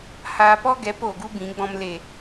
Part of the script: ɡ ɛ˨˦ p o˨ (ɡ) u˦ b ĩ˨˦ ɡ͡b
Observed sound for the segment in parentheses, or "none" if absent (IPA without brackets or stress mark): ɡ